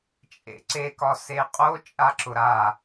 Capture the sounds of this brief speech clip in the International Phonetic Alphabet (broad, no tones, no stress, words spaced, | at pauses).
t͡ʃʼḛǀe kɒseqʼo t͡ʃʼaǁʊɾa